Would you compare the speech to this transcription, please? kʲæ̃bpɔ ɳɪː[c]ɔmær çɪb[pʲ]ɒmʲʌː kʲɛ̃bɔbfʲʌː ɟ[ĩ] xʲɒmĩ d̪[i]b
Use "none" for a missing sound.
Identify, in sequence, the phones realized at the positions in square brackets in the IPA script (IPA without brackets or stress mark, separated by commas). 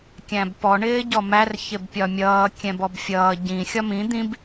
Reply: ɟ, pʲ, ĩ, ĩ